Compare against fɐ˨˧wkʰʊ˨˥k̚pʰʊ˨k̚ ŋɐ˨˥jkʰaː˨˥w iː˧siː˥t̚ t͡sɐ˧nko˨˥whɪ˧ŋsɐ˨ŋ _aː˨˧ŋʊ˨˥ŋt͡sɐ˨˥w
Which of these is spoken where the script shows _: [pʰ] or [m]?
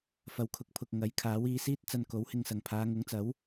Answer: pʰ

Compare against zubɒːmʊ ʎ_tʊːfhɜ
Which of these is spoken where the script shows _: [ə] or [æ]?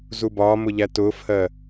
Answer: æ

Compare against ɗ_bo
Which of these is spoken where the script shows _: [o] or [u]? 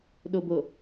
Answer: o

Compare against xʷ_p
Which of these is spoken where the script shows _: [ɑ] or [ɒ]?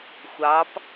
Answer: ɑ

